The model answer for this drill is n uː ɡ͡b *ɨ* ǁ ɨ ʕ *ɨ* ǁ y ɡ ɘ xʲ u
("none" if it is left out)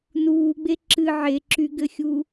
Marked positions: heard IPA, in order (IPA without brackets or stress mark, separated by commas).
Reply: e, e